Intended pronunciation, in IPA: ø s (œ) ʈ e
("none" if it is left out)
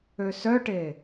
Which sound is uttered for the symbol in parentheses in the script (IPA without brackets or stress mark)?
œ